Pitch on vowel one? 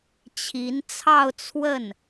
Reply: rising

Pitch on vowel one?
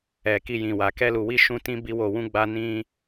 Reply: low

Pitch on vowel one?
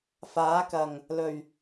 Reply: rising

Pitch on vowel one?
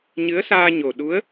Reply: rising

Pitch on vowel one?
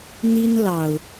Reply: high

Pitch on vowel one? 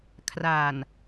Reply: low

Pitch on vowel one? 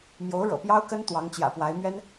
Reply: rising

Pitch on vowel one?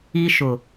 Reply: high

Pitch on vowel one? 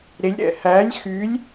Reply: rising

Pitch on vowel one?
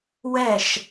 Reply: falling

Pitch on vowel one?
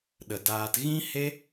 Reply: low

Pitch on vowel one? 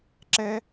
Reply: high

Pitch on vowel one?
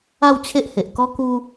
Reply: falling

